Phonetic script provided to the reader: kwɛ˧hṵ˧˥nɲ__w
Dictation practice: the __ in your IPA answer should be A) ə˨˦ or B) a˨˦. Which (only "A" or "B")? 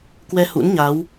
B